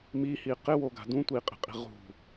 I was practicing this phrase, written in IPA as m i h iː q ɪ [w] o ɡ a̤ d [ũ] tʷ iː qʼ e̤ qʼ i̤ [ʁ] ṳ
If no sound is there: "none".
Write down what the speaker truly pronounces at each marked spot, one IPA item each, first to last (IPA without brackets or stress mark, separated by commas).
w, ũ, ʁ